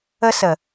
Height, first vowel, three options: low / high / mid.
mid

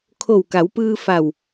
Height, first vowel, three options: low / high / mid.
mid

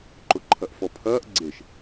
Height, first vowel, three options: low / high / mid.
high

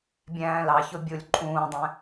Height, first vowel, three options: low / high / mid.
low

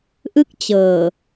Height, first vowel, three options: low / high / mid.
high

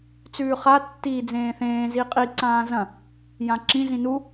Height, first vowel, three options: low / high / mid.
high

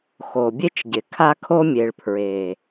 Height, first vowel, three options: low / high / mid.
mid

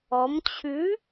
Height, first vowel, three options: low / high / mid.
mid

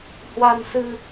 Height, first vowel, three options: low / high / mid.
low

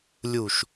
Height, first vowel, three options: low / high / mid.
high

